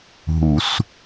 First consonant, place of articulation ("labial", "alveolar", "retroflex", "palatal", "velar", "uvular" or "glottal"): glottal